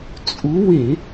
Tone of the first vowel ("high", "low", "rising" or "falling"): rising